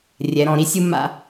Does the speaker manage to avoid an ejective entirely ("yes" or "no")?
yes